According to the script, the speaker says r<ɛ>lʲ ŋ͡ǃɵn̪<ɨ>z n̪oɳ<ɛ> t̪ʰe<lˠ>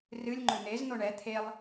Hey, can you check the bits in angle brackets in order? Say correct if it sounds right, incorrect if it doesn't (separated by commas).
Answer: incorrect, incorrect, correct, correct